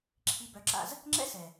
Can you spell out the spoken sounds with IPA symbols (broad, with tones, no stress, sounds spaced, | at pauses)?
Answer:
ǁʰ i˧ b œ˨˦ ǁ a̰˧ z | ŋ͡ǁ ɛ̰˦ s ɛ˨